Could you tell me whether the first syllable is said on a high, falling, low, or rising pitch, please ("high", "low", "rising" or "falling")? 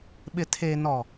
low